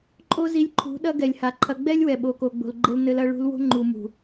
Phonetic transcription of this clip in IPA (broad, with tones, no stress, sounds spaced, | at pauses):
ǃʼ o˦ z i˧ lʲ ǃʰ ṳ˨˦ ɗ ɐ˦ ɡ ɛ˨ lʲ h a˨ ǃʰ ɐ˧ ɡ͡b ɛ˦ lʲ w ɛ˨ ɓ o˨ k o˨ ɡ͡b o̤˨ l ɡ͡ǃ ɘ˧ l n ɘ˧ l ɐ˧ ɭ ṳ˧ l w o̤˦ ŋ͡ǃ u˨ m ṳ˨